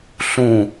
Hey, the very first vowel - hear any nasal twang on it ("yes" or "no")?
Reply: yes